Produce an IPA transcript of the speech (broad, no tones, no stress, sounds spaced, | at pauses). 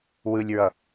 w ɯ lʲ ɹ ʌ